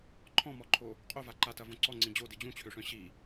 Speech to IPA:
ǃʰ ɔ̃ m ɔ ǃʰ o | qʼ o v a ǃ a t ɐ v õ ǀ ɔ ŋ͡ǀ ĩ d͡ʑ o d i d͡ʑ ũ t͡ɕʰ ø ʂ œ̃ ɕ i

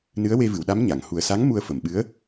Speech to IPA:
n ɨ˧˥ ə̯ w e˧ v ɨ˨˩˨ w ɗ a˧˥ m ɲ a˨˩˨ ŋ h u˨˩ ə̯ s a˧˥ ŋ m u˧ ə̯ f ə˨˩˨ m ɓ ɨ˧˥ ə̯

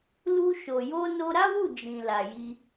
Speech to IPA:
l u˧ ʃ o˨ j o˧ n o˧ ɾ a˦ w u˦˨ d͡ʒ ĩ˨ l a˨ j i˧

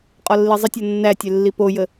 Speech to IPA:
qʼ ɒ lː i zˤ ə tʲ ɒ nː æ tʲ ɛ lː i p o j ə

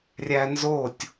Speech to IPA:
rʲ æ n z o tʲ

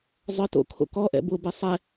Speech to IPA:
zˤ œ t o̰ kʰ o̰ k ɔ ʔ ɛ̰ b ʊ b ɛ sˤ ɛ

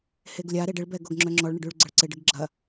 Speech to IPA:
h e ɡ lʲ a ɾ e ɖ ɪ ɭ b ɛ ɡ o ɡ ŋ͡ǁ œ ŋ͡ǁ ɔ ɭ ɳ ə ɖ y ɭ ɡ͡ǀ ə ɭ ǀ ɪ ɖ ɪ ɡ ɡ͡ǁ ɐ

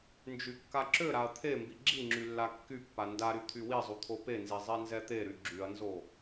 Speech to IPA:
n d͡ʒ y kː a ǁ ø ɾ a ɐ̯ t̪ʰ e m b i ɡ͡ǁ i ŋ͡ǁ y lː a kː y pː a n d a ɾ y t̪ʰ y w i zˤ u t̪ʰ o p e n z i zˤ i n z ɛ t̪ e ɾ y ɡ͡ǁ y ɐ̯ n z o

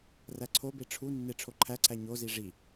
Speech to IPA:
r æ ǀʰ o b e ʈ͡ʂʰ u nː e ʈ͡ʂʰ o ǃʰ æ ǀʰ æ ɲ o z i ʐ i

